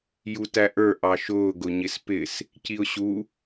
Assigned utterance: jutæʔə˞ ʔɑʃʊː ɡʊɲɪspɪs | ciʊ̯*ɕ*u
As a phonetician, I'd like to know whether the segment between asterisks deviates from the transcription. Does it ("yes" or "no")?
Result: no